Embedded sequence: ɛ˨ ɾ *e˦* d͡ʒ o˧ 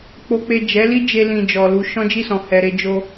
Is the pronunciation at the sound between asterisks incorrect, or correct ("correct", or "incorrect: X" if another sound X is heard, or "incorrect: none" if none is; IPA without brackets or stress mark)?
incorrect: e˧